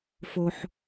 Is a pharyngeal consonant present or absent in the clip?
present